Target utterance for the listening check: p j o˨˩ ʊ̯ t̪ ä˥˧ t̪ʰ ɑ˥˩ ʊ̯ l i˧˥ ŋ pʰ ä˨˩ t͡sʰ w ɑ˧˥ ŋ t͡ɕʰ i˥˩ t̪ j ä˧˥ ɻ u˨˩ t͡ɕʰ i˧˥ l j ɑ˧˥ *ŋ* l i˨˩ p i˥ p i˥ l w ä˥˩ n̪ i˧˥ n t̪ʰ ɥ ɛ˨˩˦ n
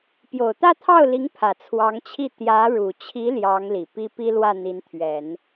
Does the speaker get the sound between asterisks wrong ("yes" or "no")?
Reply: no